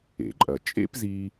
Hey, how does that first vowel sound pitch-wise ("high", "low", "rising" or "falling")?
low